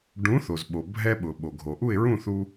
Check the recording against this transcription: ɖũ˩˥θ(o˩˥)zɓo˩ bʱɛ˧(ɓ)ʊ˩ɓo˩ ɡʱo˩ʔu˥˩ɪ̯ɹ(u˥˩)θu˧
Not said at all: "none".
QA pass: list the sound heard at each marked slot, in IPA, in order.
o˩, ɓ, ũ˥˩

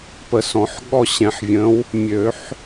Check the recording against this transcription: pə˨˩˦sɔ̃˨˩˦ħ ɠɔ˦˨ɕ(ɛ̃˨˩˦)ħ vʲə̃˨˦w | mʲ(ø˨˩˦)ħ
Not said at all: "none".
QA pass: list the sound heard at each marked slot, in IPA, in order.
ɛ̃˨˩˦, ø˨˩˦

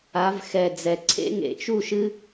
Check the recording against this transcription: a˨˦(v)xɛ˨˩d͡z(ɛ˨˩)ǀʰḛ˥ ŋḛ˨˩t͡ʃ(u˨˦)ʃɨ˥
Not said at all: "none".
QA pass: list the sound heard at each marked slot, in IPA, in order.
v, ɛ˨˩, u˥˨

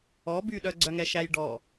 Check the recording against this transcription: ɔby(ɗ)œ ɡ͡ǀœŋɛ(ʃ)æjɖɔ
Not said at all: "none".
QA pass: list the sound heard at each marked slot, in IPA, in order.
ɗ, ʃ

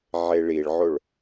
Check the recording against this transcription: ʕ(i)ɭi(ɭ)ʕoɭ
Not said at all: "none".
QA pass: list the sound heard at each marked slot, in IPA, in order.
e, ɭ

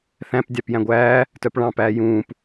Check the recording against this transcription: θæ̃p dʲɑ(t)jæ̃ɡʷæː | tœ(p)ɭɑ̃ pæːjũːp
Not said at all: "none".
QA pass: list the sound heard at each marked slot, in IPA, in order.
p, p

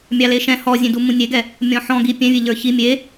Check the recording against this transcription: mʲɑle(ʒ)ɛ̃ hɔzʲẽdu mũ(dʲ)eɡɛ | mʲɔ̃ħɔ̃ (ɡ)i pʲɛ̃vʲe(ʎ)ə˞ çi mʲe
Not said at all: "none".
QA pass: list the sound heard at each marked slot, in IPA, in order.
ʃ, nʲ, ɡ, ʎ

